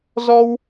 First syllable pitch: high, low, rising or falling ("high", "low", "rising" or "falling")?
high